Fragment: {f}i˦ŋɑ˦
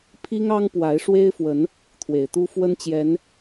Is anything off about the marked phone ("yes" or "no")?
yes